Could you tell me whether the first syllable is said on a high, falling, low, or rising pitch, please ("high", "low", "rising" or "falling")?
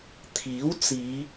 rising